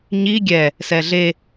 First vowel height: high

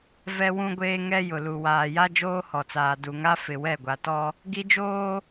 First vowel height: mid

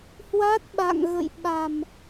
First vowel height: low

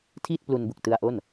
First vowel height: high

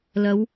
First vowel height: low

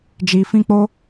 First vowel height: high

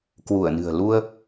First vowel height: high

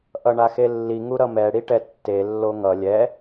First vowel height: mid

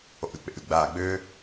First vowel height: mid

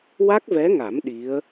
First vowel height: low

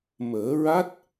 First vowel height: mid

